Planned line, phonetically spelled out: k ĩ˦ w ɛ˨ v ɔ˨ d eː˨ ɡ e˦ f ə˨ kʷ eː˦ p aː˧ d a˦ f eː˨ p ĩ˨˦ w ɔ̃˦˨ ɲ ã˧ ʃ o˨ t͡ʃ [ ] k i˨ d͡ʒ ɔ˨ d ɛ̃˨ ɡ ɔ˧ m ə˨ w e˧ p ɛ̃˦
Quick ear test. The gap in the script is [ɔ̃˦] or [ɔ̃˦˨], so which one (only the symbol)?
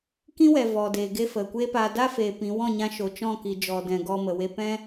ɔ̃˦˨